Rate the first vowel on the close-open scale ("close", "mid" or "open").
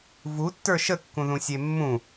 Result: close